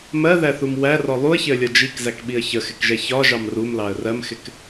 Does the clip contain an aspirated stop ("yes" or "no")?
no